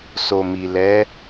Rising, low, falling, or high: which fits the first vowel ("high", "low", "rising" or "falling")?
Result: low